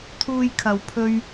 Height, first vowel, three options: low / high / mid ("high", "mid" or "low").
high